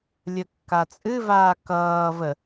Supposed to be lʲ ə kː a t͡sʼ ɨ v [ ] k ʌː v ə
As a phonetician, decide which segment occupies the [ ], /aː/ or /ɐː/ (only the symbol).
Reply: aː